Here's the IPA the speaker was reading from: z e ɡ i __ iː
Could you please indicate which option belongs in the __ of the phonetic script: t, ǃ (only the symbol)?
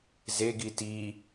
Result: t